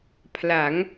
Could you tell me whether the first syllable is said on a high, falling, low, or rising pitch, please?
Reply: rising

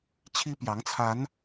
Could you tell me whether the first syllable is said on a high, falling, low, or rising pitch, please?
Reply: high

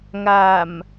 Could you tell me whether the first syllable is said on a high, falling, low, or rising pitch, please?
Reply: low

